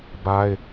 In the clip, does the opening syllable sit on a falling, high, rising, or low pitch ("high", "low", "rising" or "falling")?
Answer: high